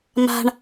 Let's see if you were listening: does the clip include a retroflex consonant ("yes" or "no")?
yes